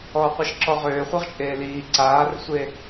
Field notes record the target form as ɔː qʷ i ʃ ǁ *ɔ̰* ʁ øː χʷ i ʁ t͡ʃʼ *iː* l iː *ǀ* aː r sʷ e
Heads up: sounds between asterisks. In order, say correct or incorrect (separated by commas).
incorrect, incorrect, correct